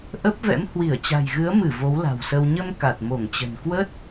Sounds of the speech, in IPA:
ʔ ə˦˥ p̚ v ɛ̰˧˥ m h w i˧˩ ə̯ t͡ɕ a̤˨˩ j ɣ ɨ˨˦ ə̯ m ɨ˧˩ v o˨˦ w l a̤˨˩ w s ə˧ w ɲ ə˧ m k a˨˩ t̚ m o˧˩ ŋ t͡ɕ ə̤˨˩ n k w ə˦˥ t̚

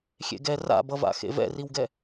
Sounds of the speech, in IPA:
xʲ ḛ ɡ ɛ r a̰ b ʌ v a̰ x ḛ v ɛ̰ r i w ɡ ɛ

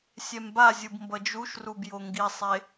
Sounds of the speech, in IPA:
sʲ ɛ m b a zʲ ɯ b m b ʌ d͡ʒ u ʃ r u b j o ŋ ɡ i sˤ e

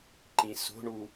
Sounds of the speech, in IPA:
ǃ ĩ s o̤ ɳ u

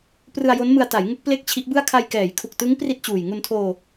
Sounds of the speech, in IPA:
p r ɯ˧ a̯ j o˦˥ n m ɯ˧ a̯ t a˩˦ j ŋ u˦˥ k̚ p l e˥˩ k̚ t͡ɕʰ i˦˥ ʔ b ɯ˥˩ a̯ kʰ a˧ j k ɛː˩˦ j kʰ u˨˩ k̚ t ɯ˦˥ ŋ p r i˥˩ t̚ t͡ɕ uː˨˩ j ŋ u˧ n tʰ oː˧

